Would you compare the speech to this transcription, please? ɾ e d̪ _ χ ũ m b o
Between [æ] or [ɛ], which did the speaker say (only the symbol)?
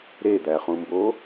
æ